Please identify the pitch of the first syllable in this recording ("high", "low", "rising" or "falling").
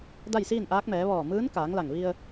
falling